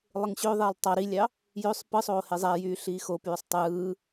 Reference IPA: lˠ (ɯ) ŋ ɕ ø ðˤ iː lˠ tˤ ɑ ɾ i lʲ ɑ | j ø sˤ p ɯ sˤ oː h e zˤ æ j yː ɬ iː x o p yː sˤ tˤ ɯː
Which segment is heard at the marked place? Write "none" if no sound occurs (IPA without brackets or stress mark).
ɯ